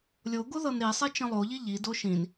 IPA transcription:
lʲoɡo ðɤnɾisˤi t͡ʃə̃lˠoʎi ʎido ʃĩn

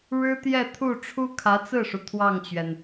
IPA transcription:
ɻɻ̩˥t̪jɛ˥˧t̪ʰu˥˩ ʈ͡ʂʰu˥kʰä˧˥t͡sɹ̩˥˩ʂu˩ t̪ʰwɑ˥˩ŋt͡ɕɥɛ˩n

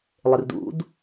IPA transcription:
lˠɪrdṵd

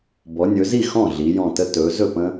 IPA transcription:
bɔ˩˧nʲɵ˩˧zi˥˩ xɔ̃˥˩ ɮi˩˧jɔ̃˧˩tə˦ tɵ˩˧ zɵ˥˩pə̃˦

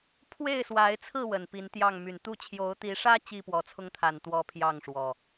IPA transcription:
pʰwe˥˨ɪ̯swa˨˦ɪ̯t͡sʰɹ̩˥˨ wə˨˩npi˨˦n t̪jɑ˥˨ŋ my˨˩nt̪u˥˨ t͡ɕʰjo˨˦ʊ̯t̪i˨˦ʂä˦ t͡ɕi˥˨pwɔ˨˩t͡sʰʊ˦ŋt̪ʰa˨˩n t̪wɔ˦pʰjɑ˥˨ŋʂwɔ˨˩

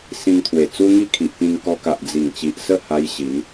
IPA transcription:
sĩ˧ŋt̪ʰwe˨˩ t͡su˦ŋi˥˧kʰi˨ʔpĩ˧ŋ kɔ˧ka˨ʔ d͡zi˨˩ŋ t͡ɕi˨ʔsə˥˧ ha˧j ɕi˨˦n

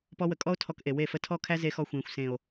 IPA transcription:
pɔ˦wə˧ kʼɔ˦o̯tʰɔ˧kʔe˨ we˦˨fə˦ tʰɔ˦kʰæ˦ ze˧xɔ˧xʷẽː˨xʷ sẽ˨o̯

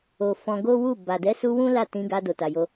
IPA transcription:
o˨ fɔ̃˧ɡo˦wu˦˨ ba˨dɛ˨˦su˧ wũ˦la˦˨tĩ˧ɡa˧ do˨ta˨ jo˧

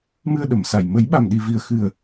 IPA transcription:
mɨ˧ə̯ɗə˨˩˨msa˨˩j mə˨˩˦jɓa˨˩mɗi˨˩vi˨˩ə̯ xɨ˨˩ə̯

